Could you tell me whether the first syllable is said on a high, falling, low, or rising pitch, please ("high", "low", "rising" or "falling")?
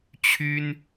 high